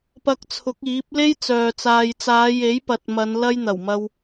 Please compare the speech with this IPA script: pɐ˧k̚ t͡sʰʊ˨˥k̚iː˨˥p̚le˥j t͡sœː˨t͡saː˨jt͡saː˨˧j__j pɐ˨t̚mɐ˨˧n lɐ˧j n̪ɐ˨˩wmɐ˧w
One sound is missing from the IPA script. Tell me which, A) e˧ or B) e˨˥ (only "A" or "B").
B